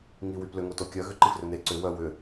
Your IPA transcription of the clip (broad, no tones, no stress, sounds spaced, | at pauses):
ŋ i w y p l ʏ ŋ o t o kʲ œ ɣ ʏ ǃ i f r ø n e ǀ ʏ w œ w ʏ